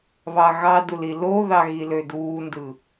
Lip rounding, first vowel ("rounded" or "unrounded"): unrounded